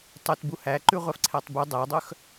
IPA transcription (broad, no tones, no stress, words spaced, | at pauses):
tˤʊt buhæǃʉ ʁʷæfǀʰætˤbʉ dˤædˤœx